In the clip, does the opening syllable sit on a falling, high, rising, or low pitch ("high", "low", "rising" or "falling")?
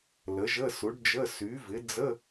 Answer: rising